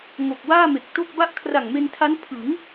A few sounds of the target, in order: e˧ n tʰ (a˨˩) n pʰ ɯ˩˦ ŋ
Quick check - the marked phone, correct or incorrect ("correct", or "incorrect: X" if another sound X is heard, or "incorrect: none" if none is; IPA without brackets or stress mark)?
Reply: incorrect: a˦˥